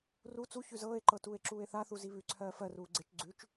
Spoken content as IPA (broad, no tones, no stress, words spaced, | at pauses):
ru t͡su çʉzɤːe̯ǃɤ tuːe̯ǁuːe̯θaθu ziβʉǀʰɜː fɜruː ɡ͡ǀet͡ʃ ɡ͡ǀʉt͡ʃ